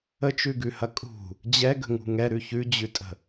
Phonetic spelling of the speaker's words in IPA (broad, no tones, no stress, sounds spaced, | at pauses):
ə t͡ʃ ʉ ɡ ʉ h ɐ kʼ ṳ | d͡ʑ ɛ ɡ ə̤ ŋ ṳ ŋ ɛ ɾ ʉ ç ʉ d͡ʑ ʉ tʼ ə̤